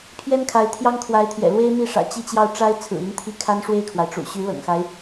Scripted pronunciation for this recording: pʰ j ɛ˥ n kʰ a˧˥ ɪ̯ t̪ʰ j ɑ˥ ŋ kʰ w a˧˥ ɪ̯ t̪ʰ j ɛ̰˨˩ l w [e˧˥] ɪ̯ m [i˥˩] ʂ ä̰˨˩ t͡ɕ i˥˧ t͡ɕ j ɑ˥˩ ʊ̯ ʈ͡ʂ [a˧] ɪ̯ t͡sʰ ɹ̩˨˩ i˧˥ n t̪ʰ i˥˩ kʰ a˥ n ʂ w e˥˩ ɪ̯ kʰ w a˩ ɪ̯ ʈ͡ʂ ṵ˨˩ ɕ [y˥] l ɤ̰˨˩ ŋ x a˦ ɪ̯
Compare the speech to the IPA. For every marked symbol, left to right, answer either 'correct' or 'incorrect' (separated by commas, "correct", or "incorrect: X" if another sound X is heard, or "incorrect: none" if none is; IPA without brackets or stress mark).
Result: incorrect: e˥, correct, incorrect: a˥, incorrect: y˧˥